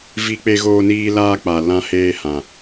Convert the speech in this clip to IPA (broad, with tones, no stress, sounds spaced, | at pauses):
v i˦ k͡p e˦ ɣ oː˦ n iː˦ l aː˦ k͡p a˨ l ã˦ h eː˦ h ã˨